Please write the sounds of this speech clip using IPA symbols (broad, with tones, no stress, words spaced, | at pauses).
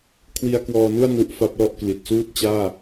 kʰwi˧a̯kwɔː˧nu˥˩a̯ nu˦˥ʔfa˦˥p̚lɔ˥˩ʔkli˨˩t̚ suː˥˩t̚t͡ɕaː˥˩